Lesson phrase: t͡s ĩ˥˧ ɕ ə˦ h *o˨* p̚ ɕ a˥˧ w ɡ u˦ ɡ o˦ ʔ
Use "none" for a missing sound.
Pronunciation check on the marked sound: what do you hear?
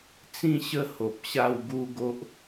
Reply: o˨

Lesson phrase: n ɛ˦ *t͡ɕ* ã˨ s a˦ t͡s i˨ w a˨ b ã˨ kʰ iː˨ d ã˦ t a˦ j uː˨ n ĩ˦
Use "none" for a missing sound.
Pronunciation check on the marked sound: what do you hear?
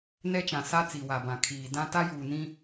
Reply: t͡ʃ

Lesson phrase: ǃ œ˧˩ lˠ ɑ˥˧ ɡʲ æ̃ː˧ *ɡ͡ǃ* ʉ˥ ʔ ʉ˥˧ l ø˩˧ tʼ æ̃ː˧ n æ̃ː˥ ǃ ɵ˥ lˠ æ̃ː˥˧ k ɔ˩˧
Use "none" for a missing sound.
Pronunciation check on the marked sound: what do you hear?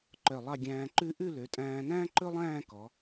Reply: ǃ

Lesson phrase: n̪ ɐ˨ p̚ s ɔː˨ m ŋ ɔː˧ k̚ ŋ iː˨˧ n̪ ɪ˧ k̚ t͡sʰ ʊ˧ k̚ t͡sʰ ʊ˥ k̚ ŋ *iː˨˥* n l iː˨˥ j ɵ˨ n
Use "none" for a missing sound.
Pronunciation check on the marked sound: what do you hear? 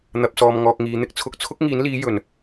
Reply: iː˨˥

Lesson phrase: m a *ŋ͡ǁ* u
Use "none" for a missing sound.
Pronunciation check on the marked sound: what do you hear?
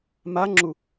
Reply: ŋ͡ǁ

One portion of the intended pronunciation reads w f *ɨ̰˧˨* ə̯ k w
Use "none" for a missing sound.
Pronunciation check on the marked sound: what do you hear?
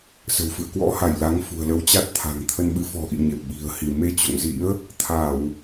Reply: ɨ̰˧˨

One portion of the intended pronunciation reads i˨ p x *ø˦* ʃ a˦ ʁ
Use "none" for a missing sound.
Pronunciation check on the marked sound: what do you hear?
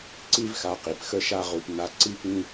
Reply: ə˦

